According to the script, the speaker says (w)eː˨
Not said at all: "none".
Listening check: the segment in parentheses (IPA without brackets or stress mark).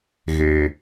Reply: ɣ